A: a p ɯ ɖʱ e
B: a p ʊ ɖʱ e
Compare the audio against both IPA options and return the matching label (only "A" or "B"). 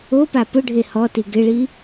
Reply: B